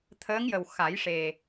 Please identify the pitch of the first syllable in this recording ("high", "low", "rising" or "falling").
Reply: rising